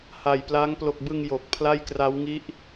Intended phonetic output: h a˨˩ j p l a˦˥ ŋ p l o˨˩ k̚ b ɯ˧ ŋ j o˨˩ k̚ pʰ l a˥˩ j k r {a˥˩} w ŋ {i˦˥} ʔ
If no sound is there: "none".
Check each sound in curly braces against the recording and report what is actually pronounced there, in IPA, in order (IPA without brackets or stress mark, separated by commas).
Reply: a˦˥, i˦˥